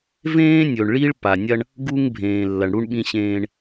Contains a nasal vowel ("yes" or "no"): yes